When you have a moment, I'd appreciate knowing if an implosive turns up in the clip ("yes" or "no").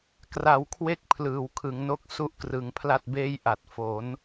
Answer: no